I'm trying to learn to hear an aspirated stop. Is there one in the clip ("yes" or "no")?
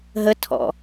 yes